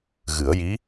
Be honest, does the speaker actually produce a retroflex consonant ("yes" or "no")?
no